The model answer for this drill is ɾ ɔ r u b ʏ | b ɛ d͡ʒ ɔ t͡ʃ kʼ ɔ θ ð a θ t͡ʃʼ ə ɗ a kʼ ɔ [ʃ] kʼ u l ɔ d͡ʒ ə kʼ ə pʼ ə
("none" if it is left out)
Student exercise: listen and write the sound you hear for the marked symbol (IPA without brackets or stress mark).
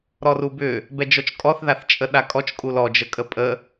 t͡ʃ